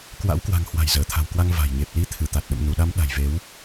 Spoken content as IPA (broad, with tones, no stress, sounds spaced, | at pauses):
k w a̰˧˥ w k w a̤˨˩ ŋ h w a̤˨˩ j z əː˧˩ t̪ʰ a̤˨˩ w k w a˧ ŋ v a̤˨˩ j ɲ e˨˩ p̚ l i˨˦ t̪ʰ ɨ˧˩ t̪ a˨˩ t̚ ɗ ə̰˧˨ m n u˧˩ ɗ a˨˦ m ɗ a̤˨˩ j v e˨˦ w